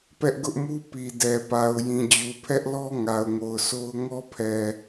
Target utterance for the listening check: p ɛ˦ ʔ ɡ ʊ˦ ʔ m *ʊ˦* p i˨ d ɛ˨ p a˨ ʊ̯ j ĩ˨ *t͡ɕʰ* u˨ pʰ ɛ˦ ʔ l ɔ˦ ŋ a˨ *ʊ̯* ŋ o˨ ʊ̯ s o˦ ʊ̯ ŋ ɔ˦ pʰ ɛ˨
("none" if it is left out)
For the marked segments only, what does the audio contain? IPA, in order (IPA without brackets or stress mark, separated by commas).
u˦, d͡ʑ, ʊ̯